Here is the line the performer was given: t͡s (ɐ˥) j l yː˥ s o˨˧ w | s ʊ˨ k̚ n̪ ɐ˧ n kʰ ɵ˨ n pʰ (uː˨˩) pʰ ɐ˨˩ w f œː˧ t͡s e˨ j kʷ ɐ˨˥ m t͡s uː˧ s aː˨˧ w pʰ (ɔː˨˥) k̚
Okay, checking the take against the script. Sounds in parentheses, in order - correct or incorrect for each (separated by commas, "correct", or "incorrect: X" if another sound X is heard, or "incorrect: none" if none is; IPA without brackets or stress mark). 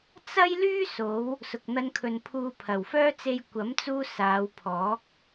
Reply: correct, incorrect: uː˨, correct